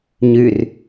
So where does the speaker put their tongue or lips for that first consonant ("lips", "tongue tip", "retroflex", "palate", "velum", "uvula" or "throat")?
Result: palate